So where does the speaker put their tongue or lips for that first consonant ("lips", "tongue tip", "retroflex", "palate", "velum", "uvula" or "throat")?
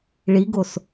retroflex